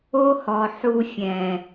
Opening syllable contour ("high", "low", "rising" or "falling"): high